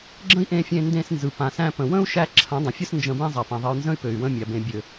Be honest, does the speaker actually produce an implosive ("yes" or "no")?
no